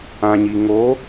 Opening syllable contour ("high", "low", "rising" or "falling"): low